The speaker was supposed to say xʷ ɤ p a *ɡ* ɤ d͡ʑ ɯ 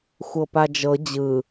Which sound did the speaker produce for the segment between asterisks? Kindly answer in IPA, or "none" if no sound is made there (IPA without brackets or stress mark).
d͡ʒ